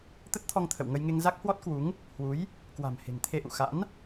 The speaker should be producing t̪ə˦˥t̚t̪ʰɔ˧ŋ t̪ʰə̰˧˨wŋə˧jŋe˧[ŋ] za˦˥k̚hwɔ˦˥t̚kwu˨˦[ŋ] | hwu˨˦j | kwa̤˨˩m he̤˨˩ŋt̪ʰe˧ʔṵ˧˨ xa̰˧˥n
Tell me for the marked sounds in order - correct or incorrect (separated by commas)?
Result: correct, correct